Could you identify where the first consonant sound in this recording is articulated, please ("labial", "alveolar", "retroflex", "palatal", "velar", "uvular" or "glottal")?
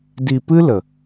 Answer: alveolar